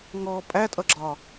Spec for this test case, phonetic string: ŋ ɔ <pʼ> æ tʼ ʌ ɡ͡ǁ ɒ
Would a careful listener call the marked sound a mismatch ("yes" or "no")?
no